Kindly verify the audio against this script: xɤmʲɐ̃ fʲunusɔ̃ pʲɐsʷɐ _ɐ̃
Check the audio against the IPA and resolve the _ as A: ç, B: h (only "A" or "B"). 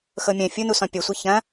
A